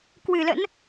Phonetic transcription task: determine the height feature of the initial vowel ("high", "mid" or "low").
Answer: high